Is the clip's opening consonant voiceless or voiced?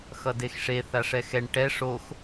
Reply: voiceless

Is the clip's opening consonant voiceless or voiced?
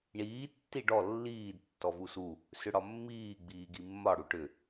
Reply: voiced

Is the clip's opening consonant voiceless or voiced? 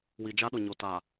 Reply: voiced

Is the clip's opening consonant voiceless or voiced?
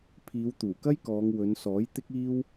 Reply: voiceless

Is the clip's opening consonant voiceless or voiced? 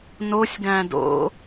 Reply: voiced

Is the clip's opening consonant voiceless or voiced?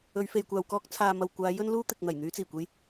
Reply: voiced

